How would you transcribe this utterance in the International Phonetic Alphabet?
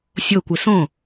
sʲokʷɪ sõ

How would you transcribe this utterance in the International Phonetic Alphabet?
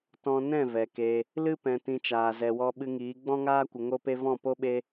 tɔ̃˧nɛ̃˦˨ vɛ˨ke˧ | lɨ˦ pɛ̃˧tĩ˧t͡ʃaː˨ zɛ˨wɔ˧ɓɨ˧ŋiː˨˦ ɡ͡bɔ̃˦ŋaː˦ kʷə˧ŋo˦pe˦ vɔ̃˦˨po˦ ɓe˦

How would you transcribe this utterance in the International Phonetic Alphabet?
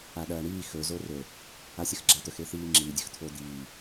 aɗɐːɳiː xɵ zorɵ | asʲɐxɡ͡ǁat̪ɵx eθiːŋ͡ǁi dʲɵxt̪ʰod̪iː

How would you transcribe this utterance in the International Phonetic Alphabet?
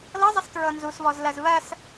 lɤzˤəstɹɤ nzusβɔzlɜz βɜs

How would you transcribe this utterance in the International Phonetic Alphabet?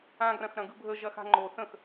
ãɡrɐ̃xɾɐ̃ɡɯ bʱəʒɐxa̤ ŋ͡ǃo θə̃x

